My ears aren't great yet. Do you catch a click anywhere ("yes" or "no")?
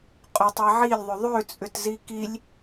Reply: no